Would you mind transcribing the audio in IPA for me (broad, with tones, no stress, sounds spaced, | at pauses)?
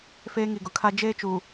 f eː˦ ŋ i˨ ɡ ʊ˨ kʰ a˦ d͡ʒ eː˦ t͡ʃ uː˨